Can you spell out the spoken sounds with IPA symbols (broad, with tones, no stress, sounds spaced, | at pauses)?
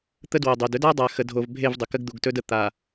t̪ ə˦ d w o˨ dˤ ɵ˨ d ɵ˦ d a˦ dˤ a˨ x ə˨ dʱ o˨ v bʱ e˦˨ v dˤ ə˨ k ə˦ ɡ d̪ u˨ ɡ t ɵ˦ d ə˨ t̪ a˨